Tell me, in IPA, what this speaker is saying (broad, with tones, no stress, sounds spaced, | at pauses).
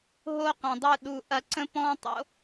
ɦ o˦ q ɐ̃˨ dˤ u˧ ɗ u˨ ʔ ɐ˧ ǀ ə̃˦ p ɔ̃ː˦ tˤ o̰˦